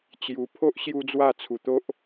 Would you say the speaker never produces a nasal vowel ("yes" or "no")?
yes